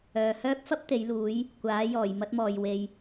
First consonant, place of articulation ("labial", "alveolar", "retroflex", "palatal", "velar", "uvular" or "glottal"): glottal